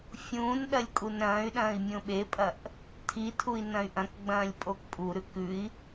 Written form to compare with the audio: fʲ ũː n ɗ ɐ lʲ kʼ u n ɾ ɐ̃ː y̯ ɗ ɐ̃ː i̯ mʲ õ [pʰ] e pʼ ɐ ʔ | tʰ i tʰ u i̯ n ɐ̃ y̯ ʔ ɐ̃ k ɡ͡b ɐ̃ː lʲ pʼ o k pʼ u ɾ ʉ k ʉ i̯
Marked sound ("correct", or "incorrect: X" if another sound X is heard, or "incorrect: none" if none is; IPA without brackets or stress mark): incorrect: ɓ